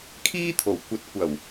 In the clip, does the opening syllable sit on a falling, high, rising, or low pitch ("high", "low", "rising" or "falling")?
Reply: high